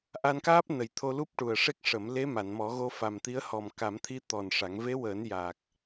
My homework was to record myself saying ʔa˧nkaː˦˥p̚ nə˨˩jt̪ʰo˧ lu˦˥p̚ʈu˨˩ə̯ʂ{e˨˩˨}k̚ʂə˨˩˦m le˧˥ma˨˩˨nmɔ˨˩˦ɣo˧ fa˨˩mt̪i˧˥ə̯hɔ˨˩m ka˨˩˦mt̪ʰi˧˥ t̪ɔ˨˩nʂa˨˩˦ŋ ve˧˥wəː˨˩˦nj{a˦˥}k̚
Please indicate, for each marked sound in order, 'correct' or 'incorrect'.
incorrect, incorrect

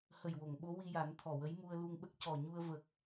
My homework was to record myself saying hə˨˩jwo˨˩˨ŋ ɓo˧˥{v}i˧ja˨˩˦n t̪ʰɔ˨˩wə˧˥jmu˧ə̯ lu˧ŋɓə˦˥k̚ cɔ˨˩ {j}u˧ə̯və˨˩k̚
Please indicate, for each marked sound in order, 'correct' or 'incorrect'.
incorrect, incorrect

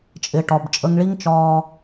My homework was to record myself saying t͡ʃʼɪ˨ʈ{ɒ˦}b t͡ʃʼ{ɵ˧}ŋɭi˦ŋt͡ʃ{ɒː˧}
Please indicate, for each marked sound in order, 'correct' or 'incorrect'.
incorrect, incorrect, correct

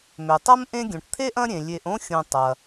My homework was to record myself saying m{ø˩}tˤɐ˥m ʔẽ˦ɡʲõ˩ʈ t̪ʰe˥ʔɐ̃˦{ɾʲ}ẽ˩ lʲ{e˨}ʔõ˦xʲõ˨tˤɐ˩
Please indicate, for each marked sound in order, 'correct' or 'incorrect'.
correct, correct, correct

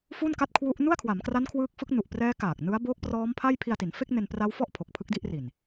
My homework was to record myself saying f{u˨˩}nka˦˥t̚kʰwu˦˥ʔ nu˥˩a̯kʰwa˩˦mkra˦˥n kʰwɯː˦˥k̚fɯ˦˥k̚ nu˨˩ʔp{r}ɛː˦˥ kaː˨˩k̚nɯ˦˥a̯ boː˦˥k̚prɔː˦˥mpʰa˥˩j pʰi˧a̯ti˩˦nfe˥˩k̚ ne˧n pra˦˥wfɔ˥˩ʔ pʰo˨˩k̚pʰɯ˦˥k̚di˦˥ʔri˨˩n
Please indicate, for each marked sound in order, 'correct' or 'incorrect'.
incorrect, correct

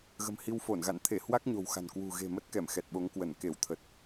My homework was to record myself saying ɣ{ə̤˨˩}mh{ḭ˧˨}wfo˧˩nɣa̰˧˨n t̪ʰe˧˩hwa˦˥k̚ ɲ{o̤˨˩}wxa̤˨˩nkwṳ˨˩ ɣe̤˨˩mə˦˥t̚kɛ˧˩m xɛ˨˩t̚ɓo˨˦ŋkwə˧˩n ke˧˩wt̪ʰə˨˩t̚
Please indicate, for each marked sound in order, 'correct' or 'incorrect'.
correct, incorrect, correct

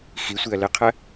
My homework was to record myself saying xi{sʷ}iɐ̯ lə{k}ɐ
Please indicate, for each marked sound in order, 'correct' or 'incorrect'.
correct, incorrect

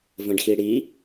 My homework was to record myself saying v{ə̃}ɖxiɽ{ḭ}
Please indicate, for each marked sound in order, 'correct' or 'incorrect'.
correct, incorrect

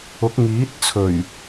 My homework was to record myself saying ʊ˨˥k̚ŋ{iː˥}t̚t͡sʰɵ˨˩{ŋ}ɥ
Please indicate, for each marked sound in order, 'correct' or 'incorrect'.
incorrect, incorrect

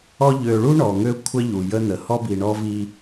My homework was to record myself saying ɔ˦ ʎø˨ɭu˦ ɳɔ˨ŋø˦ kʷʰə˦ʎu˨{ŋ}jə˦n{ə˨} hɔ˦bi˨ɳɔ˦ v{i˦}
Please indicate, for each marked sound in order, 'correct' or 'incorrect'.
incorrect, correct, correct

